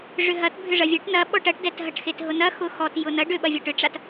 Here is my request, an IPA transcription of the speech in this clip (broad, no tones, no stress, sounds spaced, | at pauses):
ʐ ʏ ɦ ɐ t bʱ ʏ ʐ ɐ vʲ ɐ ʈ n ɐ ɓ ɔ ʈ ɐ ʈ d ɛ t ɦ ɐ ʈ x e t ɦ ʊ n ɐ x ʊ x ɔ t j ʊ n ɐ ɖ ʏ ɓ ɐ vʲ a ʈ ʏ ʈ͡ʂ a t